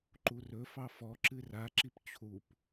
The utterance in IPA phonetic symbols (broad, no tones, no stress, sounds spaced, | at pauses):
ǃ u r ɵ f ɑ f ɔ ǁ ɨ r a ǁ i p t͡ɕʰ u p